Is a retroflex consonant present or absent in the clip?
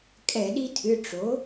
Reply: present